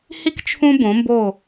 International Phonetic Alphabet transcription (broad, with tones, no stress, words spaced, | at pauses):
hi˧k t͡ʃʰũ˧bõ˩˧mbo˧˩